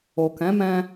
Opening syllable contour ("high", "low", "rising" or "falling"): low